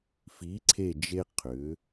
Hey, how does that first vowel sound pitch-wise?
rising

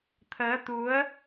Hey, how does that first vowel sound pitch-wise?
rising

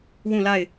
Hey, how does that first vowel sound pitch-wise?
falling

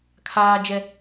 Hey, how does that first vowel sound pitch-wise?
high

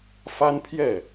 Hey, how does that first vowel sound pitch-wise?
high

